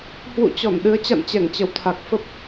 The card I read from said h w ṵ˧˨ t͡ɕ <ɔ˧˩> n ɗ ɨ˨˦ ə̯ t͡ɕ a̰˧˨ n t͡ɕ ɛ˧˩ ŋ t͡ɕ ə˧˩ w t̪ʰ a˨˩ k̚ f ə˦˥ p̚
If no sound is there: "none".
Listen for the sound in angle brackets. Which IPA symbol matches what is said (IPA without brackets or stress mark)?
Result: ɔ˧˩